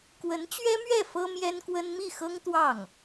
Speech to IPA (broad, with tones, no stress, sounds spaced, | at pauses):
k w ə˧˥ n t͡ɕ ɥ ɛ˥ m ɥ ɛ˥˩ f ɤ˥ m j ɛ˥ n k w ə˥ n m i˥˩ x ɤ˥ ŋ t̪ w ɑ˥˩ ŋ